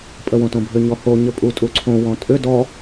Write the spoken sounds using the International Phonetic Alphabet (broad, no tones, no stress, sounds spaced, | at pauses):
pʼ ə w õ t õ bʱ ʏ ɲ ɔ h o ɲ ə pʼ u tʼ u ǀʰ õ w ɔ̃ tʼ ʏ d ɔ